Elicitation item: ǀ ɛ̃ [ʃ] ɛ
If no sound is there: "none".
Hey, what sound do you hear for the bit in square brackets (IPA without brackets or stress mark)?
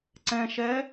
ʃ